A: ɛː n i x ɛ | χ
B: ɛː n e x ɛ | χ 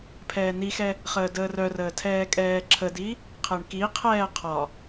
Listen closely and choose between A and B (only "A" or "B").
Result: A